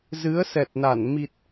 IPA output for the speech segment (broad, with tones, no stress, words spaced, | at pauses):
zɨ˨˦ə̯sɛ˨˩t̚na˧˩n mi˨˩t̚